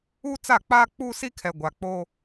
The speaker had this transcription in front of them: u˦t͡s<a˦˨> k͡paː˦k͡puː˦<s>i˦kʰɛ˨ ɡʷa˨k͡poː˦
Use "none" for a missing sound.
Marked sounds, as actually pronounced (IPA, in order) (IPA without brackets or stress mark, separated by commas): a˦˨, s